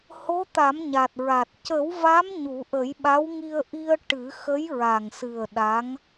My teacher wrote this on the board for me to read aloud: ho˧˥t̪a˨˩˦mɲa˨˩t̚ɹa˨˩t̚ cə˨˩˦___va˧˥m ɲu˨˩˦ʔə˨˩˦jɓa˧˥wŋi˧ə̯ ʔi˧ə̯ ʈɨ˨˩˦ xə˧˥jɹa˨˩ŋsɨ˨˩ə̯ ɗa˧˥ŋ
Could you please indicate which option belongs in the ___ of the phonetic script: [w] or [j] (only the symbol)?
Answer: w